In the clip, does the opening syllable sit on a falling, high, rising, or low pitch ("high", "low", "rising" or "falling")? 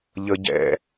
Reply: low